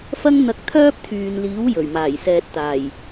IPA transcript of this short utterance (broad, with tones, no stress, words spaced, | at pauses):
fɐ˥ŋn̪ɐ˧k̚ t̪ʰœː˥p̚t̪ʰyː˨nliː˨˥w jɵ˨˩ɥmaː˨˩jsɛː˨t̚t̪aː˨˩j